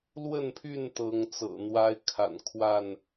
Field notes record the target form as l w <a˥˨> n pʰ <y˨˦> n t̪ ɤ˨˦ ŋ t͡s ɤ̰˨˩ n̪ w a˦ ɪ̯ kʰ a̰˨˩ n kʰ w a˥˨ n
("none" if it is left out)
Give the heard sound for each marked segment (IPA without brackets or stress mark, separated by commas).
ə˥˨, y˥˨